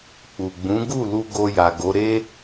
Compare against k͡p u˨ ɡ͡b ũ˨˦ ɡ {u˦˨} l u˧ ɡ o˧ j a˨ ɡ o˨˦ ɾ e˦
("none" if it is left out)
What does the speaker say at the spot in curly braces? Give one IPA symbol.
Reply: u˦˨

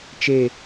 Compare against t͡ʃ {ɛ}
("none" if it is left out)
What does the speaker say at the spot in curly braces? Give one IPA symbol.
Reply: e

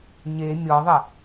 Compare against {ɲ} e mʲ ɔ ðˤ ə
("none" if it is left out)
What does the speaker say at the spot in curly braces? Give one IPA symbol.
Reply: ɲ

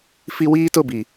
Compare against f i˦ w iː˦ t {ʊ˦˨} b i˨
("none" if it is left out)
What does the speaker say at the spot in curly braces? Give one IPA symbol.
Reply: ʊ˦˨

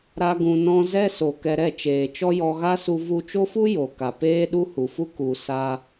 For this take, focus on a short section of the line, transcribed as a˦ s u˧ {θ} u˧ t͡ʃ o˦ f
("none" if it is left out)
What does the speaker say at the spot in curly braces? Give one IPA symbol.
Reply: v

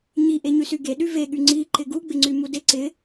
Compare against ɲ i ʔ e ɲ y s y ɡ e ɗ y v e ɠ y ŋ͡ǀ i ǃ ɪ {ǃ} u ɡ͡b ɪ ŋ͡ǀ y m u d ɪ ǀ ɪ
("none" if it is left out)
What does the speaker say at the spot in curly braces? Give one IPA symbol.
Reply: ɡ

